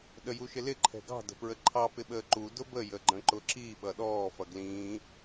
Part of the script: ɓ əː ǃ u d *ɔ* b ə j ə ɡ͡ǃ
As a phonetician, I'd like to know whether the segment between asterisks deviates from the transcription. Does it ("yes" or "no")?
yes